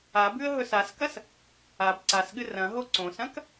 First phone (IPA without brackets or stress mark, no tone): a